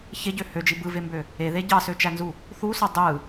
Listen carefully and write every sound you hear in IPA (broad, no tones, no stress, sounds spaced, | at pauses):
ç e ɟ ø h ø d͡ʒ i b ɯ v e m b ø | e ð e ɟ ɑ s ø t͡ʃ æ n z u | θ u s o dˤ ɯ